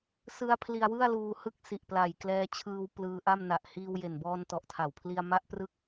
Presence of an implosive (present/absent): absent